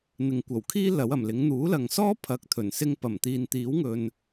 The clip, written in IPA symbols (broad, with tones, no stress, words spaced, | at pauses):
n̪ɪ˨ŋkʷɐ˨˩wkʰiː˥ lɐ˨˥wɐ˨˩mlɪ˨˥ŋ n̪uː˨˥lɐ˨ŋsɔː˥ pʰɐ˨˥k̚t̪ʰɵ˨˩n sɪ˧ŋpɐ˨˩mt̪iː˨n t̪iː˨˥wŋɵ˨n